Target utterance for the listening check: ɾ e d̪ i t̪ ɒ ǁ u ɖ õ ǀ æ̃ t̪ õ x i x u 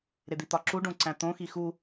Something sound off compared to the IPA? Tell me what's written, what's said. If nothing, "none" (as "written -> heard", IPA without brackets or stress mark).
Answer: none